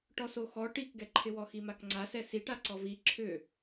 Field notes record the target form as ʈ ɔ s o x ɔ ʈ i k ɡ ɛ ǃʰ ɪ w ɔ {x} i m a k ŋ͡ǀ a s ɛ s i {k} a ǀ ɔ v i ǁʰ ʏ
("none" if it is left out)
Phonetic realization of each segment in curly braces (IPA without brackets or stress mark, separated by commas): x, ʈ